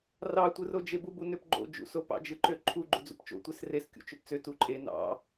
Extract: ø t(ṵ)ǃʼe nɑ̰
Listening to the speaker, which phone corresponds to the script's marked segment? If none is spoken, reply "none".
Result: u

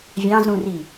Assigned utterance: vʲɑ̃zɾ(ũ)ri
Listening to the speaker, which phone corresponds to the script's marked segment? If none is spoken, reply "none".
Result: ũ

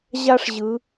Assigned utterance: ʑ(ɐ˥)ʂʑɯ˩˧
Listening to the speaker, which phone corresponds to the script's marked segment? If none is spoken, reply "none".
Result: a˥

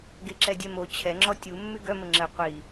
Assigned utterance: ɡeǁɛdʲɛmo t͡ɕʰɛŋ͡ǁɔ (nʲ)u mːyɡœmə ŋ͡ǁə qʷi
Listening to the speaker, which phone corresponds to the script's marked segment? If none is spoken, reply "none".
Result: tʲ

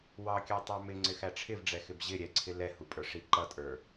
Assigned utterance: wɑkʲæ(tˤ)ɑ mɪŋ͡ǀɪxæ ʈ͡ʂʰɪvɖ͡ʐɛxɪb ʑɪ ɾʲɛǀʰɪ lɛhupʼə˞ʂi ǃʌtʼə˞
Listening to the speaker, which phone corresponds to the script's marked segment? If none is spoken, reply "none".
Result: tˤ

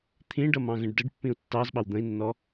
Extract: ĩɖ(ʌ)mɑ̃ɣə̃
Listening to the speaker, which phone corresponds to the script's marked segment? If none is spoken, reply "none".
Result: ʌ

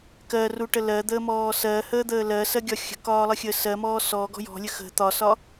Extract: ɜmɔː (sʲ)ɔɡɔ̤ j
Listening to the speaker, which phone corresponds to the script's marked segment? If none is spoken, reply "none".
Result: s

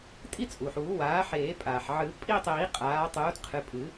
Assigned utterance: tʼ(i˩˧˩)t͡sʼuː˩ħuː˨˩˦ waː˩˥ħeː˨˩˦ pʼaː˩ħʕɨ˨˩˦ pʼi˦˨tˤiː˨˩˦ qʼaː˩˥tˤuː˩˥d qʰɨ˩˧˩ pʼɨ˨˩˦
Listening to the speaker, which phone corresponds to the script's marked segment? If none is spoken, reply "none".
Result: i˦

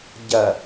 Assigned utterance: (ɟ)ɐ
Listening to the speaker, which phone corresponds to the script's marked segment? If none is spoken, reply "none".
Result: ɟ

